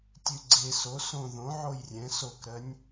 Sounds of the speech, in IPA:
tʲ ʉ ɡ͡ǀ e s o s õ ð õ ʕ o j rʲ ɛ̃ s o k ɾ ɜ nʲ

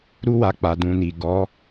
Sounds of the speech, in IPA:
ɾ u˦ w a˧ k͡p a˨ d ũ˨ n i˨ ɡ ɔ˨˦

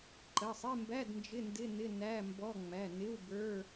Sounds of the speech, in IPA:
ǃ ə˩˧˩ sˤ ɪ˧˥˧ m b æ˧˥˧ d n d͡ʒ ɪ˧˥˧ n d ɪ˧˥˧ n ɪ˧˥˧ n æ˧˥˧ m b ɔ˧˥˧ ŋ͡m æ˩˧˩ n ɪ˧˥˧ w b ə˞˧˥˧

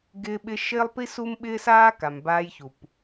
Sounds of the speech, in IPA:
ɡ ɪː˧ ɓ ɪ˧ ʃ ɪː˦ lˠ p i˦ s u˦ m ɓ ɪː˦ s aː˦ k a˨ m b aː˧ j ç u˨ p

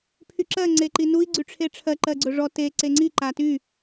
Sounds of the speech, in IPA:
pʰ y ǁ ɜ ŋ͡ǀ e ǃ i n u i̯ ɡ͡ǀ y ʈ͡ʂʰ e ʈ͡ʂʰ ɜ ǃ ɜ ɡ͡ǀ ɵ ʐ ɔ t e ǀ e ŋ͡ǀ i ǃ a t y

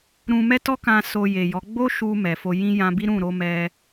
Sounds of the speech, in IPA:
ɾ ũ˧ m ɛ˦ t ɔ˦ k ã˧ s o˧ j e˨ j ɔ˨˦ ɡ͡b o˦ ʃ u˧ m ɛ˨ f o˧ j ĩ˦ j ã˧ b i˦ ɾ ũ˦˨ ɾ o˧ m ɛ˧

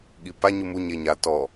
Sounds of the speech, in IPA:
ɠ i p a ɲ u m u ɲ e ɲ a t ɔ

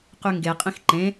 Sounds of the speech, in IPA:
q y ŋ ɡ e qʼ ĩ x ǃ ẽ

